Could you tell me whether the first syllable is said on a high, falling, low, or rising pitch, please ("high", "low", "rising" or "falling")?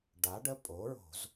rising